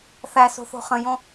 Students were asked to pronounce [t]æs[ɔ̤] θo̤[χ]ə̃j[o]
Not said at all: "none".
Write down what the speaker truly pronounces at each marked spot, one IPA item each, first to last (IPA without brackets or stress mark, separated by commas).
θ, o̤, χ, õ